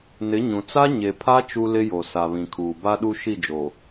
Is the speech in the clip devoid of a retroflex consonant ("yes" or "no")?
yes